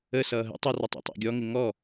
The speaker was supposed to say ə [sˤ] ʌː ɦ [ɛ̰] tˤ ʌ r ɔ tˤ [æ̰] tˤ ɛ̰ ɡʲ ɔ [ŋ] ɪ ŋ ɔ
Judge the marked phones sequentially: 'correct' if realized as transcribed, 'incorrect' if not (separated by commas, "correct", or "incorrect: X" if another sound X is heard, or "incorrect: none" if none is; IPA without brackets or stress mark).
incorrect: s, incorrect: ə̰, correct, correct